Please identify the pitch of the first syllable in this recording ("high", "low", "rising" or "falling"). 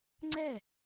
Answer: falling